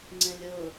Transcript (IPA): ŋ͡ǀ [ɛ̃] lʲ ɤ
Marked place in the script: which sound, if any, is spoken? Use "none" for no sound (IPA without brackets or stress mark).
ɛ̃